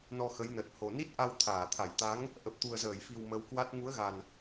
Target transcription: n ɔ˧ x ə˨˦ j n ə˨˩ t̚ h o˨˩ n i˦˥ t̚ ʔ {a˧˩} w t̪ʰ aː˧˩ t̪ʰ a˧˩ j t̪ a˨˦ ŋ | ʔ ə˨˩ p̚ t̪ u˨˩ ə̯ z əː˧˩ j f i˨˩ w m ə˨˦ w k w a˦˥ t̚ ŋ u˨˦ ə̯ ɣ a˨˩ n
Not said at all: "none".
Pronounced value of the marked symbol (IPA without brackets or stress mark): a˧